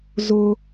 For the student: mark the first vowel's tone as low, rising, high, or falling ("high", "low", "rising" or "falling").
high